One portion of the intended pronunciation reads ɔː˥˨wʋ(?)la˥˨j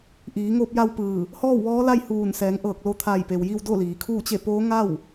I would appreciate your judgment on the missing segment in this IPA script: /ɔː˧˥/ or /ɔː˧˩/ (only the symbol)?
ɔː˧˥